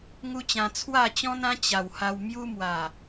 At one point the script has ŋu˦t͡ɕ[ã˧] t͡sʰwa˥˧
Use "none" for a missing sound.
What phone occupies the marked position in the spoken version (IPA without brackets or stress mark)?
ã˧